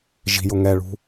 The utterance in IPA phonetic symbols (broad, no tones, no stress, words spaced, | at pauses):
ʒi̤jʊ ŋɛɭṳ